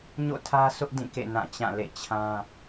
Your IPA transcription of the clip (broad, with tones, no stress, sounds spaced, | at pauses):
ɲ o̰˦˨ tʰ ä˦ sʰ ʊ˦ ʔ d ĩ˦˨ k ḛ˦˨ n ã˦˨ t͡ɕ ã˦˨ l ḛ˦˨ t͡ɕʰ ã˦